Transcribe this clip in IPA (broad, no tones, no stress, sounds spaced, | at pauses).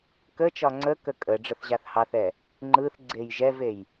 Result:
k ə t͡ʃ ɒ ŋ͡ǀ ə k ə kʼ ə ɖ͡ʐ ə θ ʑ a θ h ɑ θ ɛ | ŋ͡ǃ ɯ θ ɡ͡ǀ e j ʒ ɛ v e j